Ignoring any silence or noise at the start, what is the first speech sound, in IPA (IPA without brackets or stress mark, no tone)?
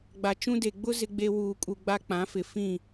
ɡ͡b